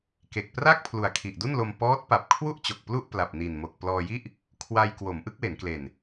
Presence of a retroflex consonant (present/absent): absent